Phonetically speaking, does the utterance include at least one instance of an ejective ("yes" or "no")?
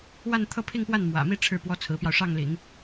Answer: no